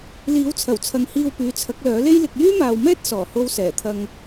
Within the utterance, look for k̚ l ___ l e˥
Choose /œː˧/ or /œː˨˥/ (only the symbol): œː˨˥